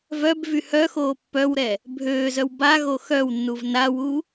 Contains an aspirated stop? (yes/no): no